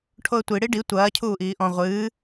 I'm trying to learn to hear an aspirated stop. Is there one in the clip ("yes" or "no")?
yes